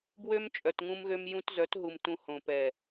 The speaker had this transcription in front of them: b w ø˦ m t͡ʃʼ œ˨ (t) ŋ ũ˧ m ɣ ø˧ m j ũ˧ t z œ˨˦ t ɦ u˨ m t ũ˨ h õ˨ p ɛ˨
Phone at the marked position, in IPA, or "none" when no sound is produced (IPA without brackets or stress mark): t